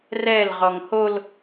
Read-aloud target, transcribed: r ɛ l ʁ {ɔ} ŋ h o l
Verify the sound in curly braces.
correct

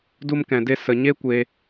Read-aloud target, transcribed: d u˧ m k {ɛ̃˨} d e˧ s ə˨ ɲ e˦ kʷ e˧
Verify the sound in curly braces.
correct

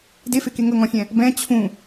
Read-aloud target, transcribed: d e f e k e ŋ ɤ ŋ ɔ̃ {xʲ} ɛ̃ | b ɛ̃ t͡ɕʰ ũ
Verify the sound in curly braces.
correct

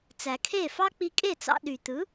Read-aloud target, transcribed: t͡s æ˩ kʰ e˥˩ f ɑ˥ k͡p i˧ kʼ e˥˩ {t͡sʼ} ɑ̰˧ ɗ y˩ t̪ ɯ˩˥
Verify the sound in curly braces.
incorrect: t͡s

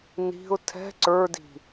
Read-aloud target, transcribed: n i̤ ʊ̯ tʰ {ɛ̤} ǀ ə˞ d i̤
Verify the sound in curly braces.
correct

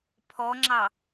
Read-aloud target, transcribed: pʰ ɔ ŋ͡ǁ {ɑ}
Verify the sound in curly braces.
correct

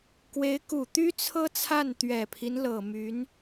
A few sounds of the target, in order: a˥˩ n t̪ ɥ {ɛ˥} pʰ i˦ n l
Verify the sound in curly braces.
incorrect: ɛ˨˩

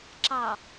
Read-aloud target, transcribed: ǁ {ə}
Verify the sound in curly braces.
incorrect: ɑ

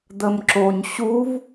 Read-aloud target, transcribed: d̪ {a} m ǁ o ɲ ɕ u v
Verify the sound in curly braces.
incorrect: ə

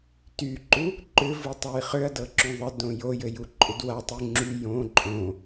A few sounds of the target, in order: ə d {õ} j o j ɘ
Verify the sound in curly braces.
correct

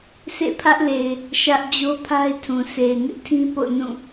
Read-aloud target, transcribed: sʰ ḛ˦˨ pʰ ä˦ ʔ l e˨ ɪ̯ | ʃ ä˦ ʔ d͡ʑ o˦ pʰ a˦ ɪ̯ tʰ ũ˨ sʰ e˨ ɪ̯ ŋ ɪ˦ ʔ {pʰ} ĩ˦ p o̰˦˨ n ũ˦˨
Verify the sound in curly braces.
incorrect: tʰ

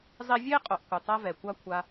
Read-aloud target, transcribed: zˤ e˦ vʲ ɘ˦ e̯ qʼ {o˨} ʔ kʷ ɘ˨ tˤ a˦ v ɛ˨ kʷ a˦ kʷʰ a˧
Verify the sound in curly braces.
correct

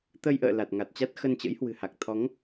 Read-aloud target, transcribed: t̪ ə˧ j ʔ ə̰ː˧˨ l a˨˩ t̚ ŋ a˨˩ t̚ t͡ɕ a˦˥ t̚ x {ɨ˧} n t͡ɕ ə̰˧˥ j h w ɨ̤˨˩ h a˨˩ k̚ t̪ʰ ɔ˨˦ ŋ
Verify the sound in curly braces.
incorrect: ə˧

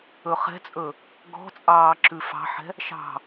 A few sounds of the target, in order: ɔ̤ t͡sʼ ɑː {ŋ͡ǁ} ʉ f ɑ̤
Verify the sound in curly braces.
incorrect: ǁ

